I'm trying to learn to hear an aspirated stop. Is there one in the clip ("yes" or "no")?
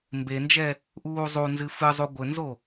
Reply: no